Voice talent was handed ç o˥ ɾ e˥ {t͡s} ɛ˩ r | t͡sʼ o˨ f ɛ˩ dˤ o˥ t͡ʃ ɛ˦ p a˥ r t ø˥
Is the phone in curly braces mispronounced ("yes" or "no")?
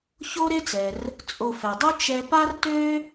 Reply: no